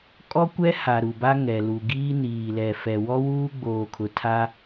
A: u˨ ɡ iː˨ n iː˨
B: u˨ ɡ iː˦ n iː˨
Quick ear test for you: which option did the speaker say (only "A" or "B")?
B